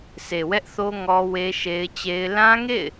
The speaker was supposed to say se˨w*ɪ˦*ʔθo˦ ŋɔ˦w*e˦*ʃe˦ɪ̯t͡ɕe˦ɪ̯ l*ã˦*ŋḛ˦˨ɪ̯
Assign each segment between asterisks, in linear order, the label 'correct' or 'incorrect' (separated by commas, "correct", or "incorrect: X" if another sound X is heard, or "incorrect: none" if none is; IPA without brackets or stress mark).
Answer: incorrect: ɛ˦, correct, correct